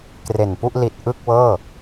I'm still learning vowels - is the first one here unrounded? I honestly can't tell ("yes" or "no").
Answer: yes